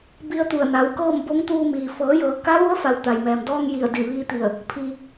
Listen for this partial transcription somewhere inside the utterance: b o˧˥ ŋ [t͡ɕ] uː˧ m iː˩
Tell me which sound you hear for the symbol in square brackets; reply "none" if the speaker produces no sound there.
t̪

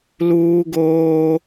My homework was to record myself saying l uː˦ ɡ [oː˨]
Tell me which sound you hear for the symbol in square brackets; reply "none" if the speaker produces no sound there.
oː˦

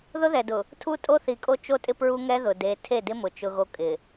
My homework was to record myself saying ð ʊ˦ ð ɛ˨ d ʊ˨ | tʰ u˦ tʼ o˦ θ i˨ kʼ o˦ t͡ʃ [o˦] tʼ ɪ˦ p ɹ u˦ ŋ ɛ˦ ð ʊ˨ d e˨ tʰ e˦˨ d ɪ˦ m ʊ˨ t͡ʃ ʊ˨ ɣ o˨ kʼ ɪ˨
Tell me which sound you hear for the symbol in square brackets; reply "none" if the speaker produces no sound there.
o˦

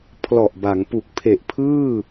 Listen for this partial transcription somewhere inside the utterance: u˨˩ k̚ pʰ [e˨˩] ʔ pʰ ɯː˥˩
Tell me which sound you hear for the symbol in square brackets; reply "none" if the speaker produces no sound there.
e˨˩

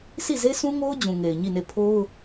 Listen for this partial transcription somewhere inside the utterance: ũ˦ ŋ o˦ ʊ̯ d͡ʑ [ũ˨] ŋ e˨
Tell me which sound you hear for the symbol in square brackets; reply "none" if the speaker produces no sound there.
ũ˨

